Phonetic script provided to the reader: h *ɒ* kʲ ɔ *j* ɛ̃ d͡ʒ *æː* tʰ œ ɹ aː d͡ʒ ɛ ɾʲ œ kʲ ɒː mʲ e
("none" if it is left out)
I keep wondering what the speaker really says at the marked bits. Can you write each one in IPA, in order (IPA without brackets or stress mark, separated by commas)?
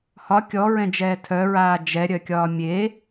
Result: ɒ, ɹ, ɛː